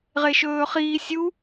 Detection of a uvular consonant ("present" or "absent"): present